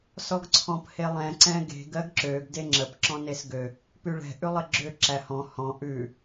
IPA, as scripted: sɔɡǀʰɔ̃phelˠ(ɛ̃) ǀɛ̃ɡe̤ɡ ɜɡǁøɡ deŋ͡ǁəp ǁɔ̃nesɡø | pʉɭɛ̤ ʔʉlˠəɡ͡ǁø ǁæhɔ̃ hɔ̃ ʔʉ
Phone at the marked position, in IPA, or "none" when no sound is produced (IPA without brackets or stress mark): ɛ̃